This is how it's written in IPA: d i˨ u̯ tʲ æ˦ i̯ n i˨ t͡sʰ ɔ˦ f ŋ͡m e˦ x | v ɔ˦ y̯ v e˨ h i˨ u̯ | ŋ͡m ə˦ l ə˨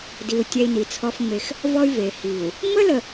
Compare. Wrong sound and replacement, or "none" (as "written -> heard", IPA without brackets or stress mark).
none